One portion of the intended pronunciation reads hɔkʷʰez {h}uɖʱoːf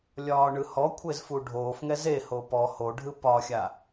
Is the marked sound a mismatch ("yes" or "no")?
yes